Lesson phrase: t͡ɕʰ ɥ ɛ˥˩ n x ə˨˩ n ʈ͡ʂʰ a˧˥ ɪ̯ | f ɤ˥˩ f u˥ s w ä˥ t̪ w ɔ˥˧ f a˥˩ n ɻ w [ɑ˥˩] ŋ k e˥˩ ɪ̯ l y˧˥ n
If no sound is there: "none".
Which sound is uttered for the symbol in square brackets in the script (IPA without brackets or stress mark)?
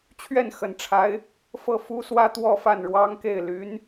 ɑ˥